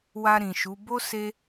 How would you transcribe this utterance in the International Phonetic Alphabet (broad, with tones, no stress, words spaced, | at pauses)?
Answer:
wa˧ ɾĩ˨ʃu˨˦ bo˦ se˦